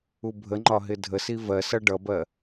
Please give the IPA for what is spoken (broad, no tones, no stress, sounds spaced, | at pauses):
u bʱ ə ŋ͡ǃ ɒ ɦ ɪ dʱ ə s i v ɜ s ʌ ɖ ʌ b ɜ